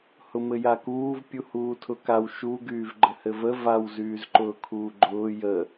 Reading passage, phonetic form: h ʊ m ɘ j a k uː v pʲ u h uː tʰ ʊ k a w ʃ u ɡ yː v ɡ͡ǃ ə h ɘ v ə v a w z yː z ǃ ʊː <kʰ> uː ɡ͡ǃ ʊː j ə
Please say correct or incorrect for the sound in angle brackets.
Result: correct